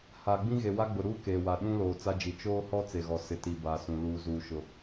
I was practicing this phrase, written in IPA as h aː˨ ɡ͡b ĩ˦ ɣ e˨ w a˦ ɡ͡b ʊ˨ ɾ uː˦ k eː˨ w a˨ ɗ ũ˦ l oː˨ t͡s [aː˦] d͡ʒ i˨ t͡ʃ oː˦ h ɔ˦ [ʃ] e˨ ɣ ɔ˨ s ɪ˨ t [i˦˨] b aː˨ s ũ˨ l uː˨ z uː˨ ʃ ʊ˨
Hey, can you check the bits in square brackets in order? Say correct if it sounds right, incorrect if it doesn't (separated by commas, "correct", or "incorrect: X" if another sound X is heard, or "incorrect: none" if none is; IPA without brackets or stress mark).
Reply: incorrect: a˦, incorrect: t͡s, incorrect: i˨